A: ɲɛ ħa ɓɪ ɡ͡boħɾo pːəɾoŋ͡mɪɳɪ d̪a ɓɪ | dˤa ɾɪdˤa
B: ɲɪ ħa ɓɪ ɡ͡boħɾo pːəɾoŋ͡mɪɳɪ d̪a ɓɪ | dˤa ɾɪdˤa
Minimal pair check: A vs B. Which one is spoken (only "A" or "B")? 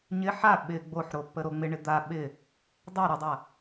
B